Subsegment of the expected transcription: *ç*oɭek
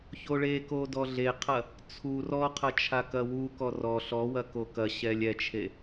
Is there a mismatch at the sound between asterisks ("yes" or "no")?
no